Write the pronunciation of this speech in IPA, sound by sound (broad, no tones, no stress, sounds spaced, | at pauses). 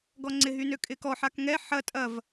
ɡ ɔ ŋ͡ǀ ɪ ɦ y n ø kʼ ɪ k ɔ ħ a k ŋ ɛ ħ ɐ tʼ ɐ v